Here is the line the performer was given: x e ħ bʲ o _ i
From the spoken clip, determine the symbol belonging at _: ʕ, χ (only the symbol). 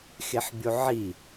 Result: ʕ